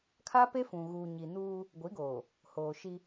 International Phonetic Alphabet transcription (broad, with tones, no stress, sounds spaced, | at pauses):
kʰ a˦ p e˦ f ũ˨ ɣ uː˨ ɲ i˨ n uː˦ | ɡʷ i˨˦ ɡ oː˨ | h oː˨ ʃ i˦